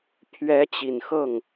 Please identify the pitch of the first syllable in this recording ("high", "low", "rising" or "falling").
rising